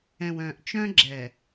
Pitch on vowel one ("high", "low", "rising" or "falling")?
low